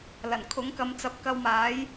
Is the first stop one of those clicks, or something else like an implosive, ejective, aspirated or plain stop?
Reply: aspirated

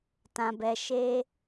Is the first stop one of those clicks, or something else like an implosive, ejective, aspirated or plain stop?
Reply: plain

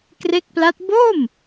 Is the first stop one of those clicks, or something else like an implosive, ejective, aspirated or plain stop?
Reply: plain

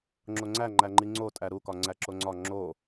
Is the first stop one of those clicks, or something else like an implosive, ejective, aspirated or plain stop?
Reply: click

